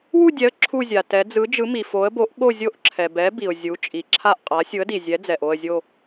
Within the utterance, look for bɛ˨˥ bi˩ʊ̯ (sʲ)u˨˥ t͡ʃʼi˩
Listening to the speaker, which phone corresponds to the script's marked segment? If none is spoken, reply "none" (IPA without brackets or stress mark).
zʲ